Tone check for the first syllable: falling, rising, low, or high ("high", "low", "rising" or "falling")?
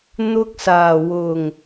high